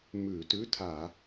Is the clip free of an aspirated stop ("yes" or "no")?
no